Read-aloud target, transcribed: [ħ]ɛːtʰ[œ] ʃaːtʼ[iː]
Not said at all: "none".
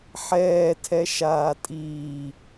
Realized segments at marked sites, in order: ħ, ɛ, iː

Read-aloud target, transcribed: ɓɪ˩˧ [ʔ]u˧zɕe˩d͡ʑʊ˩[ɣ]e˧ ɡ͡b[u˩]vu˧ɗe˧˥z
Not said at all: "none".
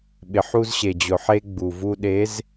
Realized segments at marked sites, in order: ħ, ħ, u˩

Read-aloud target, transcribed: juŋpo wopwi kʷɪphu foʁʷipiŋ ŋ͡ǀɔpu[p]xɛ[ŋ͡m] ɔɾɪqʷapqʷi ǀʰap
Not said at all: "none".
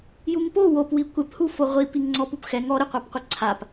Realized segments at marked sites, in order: p, ŋ

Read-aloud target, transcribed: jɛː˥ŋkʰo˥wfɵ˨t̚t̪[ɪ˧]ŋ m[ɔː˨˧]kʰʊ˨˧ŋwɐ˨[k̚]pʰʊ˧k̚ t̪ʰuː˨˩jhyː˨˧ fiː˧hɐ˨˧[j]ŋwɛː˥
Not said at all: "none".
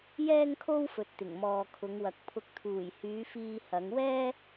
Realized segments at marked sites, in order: ɪ˨˩, ɔː˨, k̚, none

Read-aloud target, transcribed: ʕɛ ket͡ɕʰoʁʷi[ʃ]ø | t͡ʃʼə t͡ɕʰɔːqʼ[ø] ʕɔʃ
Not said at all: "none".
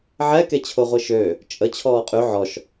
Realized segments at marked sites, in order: ʃ, y

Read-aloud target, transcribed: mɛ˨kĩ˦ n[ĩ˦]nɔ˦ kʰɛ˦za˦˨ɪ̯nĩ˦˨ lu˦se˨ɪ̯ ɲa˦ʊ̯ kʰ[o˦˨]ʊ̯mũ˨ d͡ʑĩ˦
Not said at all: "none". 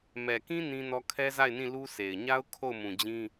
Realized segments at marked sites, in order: ĩ˦, o˦˨

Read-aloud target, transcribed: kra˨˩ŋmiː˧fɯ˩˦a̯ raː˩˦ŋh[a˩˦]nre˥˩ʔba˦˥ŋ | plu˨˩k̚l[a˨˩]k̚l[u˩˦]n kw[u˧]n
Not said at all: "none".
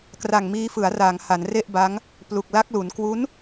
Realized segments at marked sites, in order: a˩˦, a˦˥, u˩˦, u˦˥

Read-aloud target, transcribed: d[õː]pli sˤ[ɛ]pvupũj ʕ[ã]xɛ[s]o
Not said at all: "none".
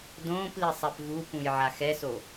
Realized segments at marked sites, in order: õː, ɛ, a, s

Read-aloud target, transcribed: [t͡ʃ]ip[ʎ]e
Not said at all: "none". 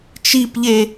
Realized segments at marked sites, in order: t͡ʃ, ʎ

